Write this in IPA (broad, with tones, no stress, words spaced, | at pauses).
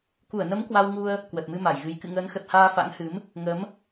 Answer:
ku˧˩ə̯nə˨˦m kwa˧wŋu˧ə̯ | kwə˨˩t̚mɨ˧ma˧˩jɣɨ˨˦j kɨ̰˧˨ŋəː˨˦nxə˨˩t̚haː˧ fa̰˧˥ŋhɨ˨˦m | ŋə˨˦m